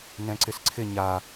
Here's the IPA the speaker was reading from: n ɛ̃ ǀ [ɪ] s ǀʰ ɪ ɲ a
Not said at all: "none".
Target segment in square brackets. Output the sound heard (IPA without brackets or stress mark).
ɪ